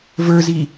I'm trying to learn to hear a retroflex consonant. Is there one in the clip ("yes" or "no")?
no